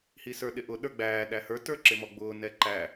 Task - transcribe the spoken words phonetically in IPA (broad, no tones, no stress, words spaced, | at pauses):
hisə˞ɗɪʔʊ ɗə˞ɡ͡bæː ɗæhə˞ tə˞ǁɪmɔɡ͡bʊː nɛǃæ